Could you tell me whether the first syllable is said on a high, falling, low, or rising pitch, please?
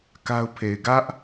high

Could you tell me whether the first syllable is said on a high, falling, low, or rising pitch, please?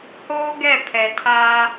high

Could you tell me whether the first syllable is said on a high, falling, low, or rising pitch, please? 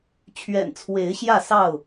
low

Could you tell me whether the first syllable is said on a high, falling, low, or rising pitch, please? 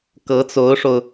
rising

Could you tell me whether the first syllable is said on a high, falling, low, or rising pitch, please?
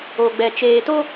low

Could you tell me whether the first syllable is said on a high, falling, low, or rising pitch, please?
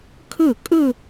falling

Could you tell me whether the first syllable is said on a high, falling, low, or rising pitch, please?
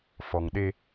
low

